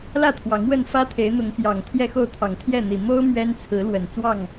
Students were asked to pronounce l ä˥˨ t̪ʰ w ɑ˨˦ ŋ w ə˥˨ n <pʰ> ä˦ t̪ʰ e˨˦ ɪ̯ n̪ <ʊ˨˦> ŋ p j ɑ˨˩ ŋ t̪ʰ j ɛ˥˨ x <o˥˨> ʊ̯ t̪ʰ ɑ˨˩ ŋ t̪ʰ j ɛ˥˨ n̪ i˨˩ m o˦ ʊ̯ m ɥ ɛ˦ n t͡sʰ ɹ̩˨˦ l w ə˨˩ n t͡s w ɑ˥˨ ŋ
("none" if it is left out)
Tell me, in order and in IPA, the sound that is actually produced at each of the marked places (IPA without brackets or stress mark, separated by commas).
f, ʊ˨˦, o˥˨